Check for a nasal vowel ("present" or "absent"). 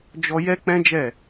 present